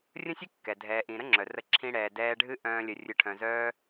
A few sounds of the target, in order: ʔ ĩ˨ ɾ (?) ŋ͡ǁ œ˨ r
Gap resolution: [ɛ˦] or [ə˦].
ə˦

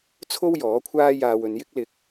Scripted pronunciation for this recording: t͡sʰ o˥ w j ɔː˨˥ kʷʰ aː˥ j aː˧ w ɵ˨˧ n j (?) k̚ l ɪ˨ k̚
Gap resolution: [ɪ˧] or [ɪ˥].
ɪ˥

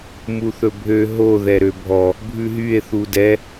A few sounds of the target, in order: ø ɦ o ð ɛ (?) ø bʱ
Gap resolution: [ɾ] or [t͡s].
ɾ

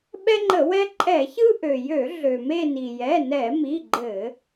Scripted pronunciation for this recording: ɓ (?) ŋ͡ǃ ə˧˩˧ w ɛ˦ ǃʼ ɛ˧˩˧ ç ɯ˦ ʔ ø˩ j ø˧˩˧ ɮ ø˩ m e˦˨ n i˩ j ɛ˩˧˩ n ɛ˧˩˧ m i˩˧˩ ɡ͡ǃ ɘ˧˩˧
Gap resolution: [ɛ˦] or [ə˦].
ɛ˦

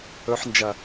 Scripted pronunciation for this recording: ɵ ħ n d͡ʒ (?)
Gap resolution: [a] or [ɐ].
ɐ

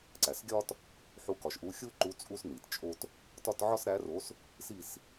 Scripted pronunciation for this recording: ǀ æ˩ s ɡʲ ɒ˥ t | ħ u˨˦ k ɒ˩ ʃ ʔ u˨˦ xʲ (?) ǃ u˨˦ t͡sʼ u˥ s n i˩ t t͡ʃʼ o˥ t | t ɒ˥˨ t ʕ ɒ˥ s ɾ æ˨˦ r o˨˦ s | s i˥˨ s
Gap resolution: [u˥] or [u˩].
u˥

